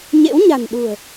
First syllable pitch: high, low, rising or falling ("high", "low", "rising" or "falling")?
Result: rising